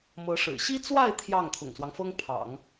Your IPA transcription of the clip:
m ɤ˧˥ ʂ ɻ̩˨˩ ɕ i˥ t͡s w a˥˧ ɪ̯ t̪ʰ j ɑ˥˩ ŋ t̪ʰ ʊ̰˨˩ ŋ s w ɑ˦ ŋ f ɤ˥ ŋ pʰ ɑ̰˨˩˦ ŋ

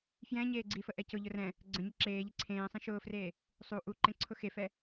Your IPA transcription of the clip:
f j ɛ̃ ɲ eː ɡ͡ǀ i f ə ʔ ɛ c ʊ ʎ ʊ r ɛ̃ | ɡ͡ǀ ə̃ ɲ ə ǁ eː ʎ i ǀʰ ẽː sˤ ĩ ʃ ʊː f r eː | sˤ u ʔ u ǃ ẽ ǀʰ ʊ x e f ɛ

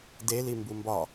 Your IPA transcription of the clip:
d e l i m b u m b ɒ

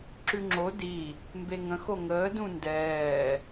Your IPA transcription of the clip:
ǁ ʉ ŋ͡ǁ o d i | m b e ŋ ə̃ x o ŋ əː d ũ n d ɛː

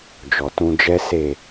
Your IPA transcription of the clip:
d͡ʒ ɔ˨ t ũ˧ d͡ʒ ɛ˦ s e˦˨

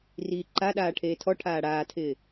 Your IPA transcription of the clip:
r iː ǃ a ɗ aː ʈʰ eː tʰ ɔ ʈʰ aː ɽ aː tʰ ɪː

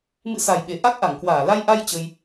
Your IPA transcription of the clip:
m ɨ̰˧˥ s a˨˩ j ɓ e˧˩ ʔ a˦˥ k̚ ʔ a˧˩ ŋ k w aː˧˩ l a˧ j ʔ a˧ j t͡ɕ ə˧ j

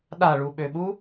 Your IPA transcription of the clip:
ɗ a ɭ u ɓ ø ɓ u

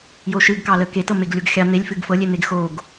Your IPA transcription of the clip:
j o ʃ ɨ ɡ k ɑ l ə k e t ɤ m e ɡ lʲ o ɡ xʲ ɑ n̪ e lʲ f ɨ ɡ f ɤ lʲ e n̪ e ɡ x o ɡ

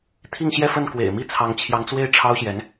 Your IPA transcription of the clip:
t̪ʰ i˥˧ ŋ ɕ j ɛ˥˧ f ə˥˩ n k w ḛ˨˩ ɪ̯ m i˥˩ t͡sʰ ɑ˧˥ ŋ t͡ɕʰ j ɑ˧˥ ŋ t͡s w e˥˩ ɪ̯ ʈ͡ʂʰ ɑ˥ ʊ̯ ɕ j ɛ˧˥ n

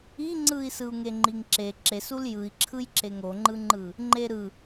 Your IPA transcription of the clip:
i ŋ͡ǀ ɯ i̯ s ɯ u̯ ŋ e ŋ͡ǃ i ŋ ǁ e ǁ e s u l j ɯ i̯ ǁʰ ɯ j ǁ e ŋ o ŋ͡ǃ ɯ ŋ͡ǃ ɯ | ŋ͡ǃ e ɾ ɯ

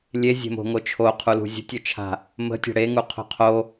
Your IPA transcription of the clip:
lʲ e zʲ e̤ m o̤ ŋ o t͡ʃʰ o qʰ u l ṳ zʲ ə̤ tʲ o t͡ʃʰ a̤ | m ə̤ tʲ a̤ ɽ e ŋ u qʰ o̤ qʰ o

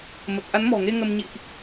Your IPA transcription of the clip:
m ə˨˩ t̚ ʔ a˨˦ n m ɔ̤˨˩ ŋ e˧ ŋ ə˧ m ɲ ḭ˧˨ ʔ

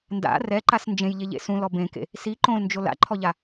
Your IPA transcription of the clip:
n d a̰ r ɛ ǃ a s n d͡ʒ ẽ j ʎ e ʎ ḛ s ũ l ɔ b ẽ k ḛ | s i ǃ õ l n d͡ʒ o l a̰ ǃʰ ɔ ʎ a

